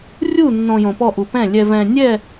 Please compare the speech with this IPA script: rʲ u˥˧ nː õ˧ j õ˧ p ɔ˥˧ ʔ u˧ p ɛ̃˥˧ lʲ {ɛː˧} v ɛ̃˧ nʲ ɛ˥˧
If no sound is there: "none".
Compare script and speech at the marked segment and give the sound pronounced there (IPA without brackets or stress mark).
ɛ˧